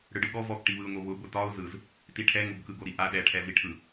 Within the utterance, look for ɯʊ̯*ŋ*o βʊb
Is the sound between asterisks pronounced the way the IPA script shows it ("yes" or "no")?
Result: yes